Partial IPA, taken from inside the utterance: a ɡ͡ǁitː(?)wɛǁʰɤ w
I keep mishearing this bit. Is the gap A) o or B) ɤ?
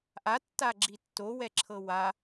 A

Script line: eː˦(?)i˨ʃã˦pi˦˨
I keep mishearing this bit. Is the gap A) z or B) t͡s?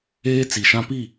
B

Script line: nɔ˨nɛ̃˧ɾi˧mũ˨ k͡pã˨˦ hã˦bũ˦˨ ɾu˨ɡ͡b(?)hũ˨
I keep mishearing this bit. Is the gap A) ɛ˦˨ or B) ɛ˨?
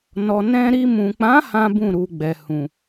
B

